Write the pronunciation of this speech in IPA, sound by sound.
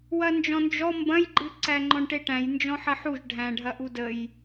w ɐ n d͡ʒ ɔ̃ n d͡ʒ ɔ m b ɐ̃ j ɡ͡ǃ ɨ ǀ æ ŋ͡ǃ ɔ̃ ɳ ʈ e ʈ æ̃ j n d͡ʒ ɔ̃ ħ ɐ ħ u ʒ ɖʱ æ̃ ɖʱ ɐ ʔ u d ə j

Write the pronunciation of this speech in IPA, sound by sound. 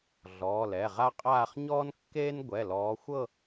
ɮ ɔː˩˧˩ l ɛ˩˧˩ ʁ a˥ qʼ aː˥˧ χ ɲ ɔː˥ n kː eː˥ n ɡʷ ɛ˩˧˩ l ɔː˨˦ xʷ ɤ˥˧

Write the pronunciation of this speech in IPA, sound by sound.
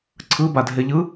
ǀʰ ɯ b a dʱ e ʎ ɯ

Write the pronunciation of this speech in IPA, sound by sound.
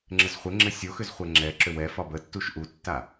ŋ͡ǁ ɘ z χʷ ɘ ŋ͡ǁ ɘ sʲ o x ʏ z χʷ ɛ ŋ͡ǁ ɛ ǁ ʏ w ɛ f ɒ b ə tː u ʃ ʔ u tː a

